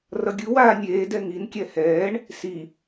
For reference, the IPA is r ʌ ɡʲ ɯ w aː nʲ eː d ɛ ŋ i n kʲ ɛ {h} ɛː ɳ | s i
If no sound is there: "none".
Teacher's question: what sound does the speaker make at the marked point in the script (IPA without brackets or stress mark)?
h